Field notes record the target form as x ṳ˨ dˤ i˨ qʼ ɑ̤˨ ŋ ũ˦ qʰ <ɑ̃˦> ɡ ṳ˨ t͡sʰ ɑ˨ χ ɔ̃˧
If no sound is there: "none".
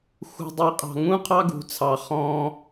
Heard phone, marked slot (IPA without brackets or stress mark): ɑ˦